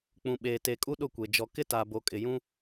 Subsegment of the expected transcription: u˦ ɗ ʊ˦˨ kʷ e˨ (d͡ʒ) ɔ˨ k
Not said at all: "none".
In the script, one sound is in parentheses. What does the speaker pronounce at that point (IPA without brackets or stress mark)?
d͡ʒ